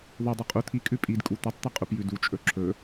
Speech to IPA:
ðˤ ʉ dˤ u qʼ u t̪ʰ i kʼ ʉ pʼ i d kʼ u t̪ ɵ tˤ t̪ i qʼ u p j ʉ d u t͡ʃʼ ɵ ǁʰ ɵ

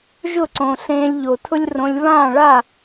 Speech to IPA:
ʒ ʊ˦˨ ǀ õ˨ ɬ ẽː˧ lʲ ʎ o˨ tʰ ʊ˦ lʲ r õ˧ lʲ β ãː˦˨ ɭ a˦˨

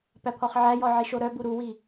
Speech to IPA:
p æ pʰ ɔ χ ʕ æ j ɔ ʕ i ʃ o ɾ œ b u ɾ u w i

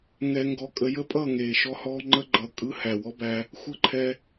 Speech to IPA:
ŋ ɛ˧ ŋ ɡ ɔ˧ kʼ ə˧ j ə˦ pʼ ʌː˦˨ ŋ eː˨ ʃ ɔ˦ h ɔː˦ ŋ͡ǃ ə˦ ɡ͡ǃ ʌ˨ kʼ ɯ˦ h æ˨ w ɔ˦ b æ˧ | xʷ ə˦˨ ǃʰ ɛ˧

